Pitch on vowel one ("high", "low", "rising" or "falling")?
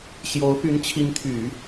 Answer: rising